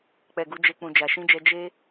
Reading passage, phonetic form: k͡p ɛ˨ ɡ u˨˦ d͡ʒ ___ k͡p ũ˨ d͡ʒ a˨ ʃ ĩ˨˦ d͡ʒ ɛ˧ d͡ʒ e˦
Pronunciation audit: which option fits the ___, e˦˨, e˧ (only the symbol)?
e˧